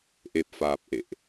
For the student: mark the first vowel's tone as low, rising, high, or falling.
low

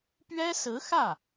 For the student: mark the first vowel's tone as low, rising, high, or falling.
high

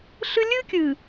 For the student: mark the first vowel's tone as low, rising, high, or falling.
high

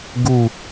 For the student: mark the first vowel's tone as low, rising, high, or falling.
falling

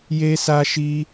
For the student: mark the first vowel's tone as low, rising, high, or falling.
high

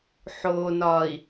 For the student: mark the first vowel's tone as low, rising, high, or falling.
low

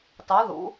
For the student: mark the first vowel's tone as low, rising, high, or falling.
rising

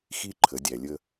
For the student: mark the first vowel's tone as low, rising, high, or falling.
high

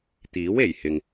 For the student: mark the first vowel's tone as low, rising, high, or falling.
rising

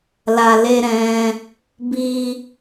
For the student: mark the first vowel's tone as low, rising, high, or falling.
low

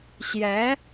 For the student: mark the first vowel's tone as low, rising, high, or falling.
rising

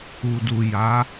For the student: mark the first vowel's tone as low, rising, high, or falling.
low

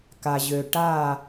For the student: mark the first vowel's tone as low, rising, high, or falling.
low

